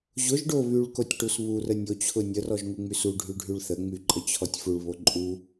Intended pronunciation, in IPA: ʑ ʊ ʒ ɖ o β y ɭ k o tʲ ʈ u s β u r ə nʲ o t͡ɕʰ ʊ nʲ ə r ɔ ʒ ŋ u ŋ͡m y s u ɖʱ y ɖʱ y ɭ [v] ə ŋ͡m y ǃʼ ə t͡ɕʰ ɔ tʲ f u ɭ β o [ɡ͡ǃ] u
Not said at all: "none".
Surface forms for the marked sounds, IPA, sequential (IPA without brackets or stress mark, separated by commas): θ, ǃʼ